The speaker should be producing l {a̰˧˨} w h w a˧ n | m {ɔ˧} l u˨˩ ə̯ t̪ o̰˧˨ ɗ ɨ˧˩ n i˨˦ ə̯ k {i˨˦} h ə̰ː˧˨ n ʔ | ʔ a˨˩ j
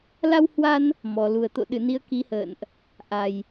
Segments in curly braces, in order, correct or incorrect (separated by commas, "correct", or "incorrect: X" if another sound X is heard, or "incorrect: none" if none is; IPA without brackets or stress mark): incorrect: a˧, incorrect: ɔ˨˩, correct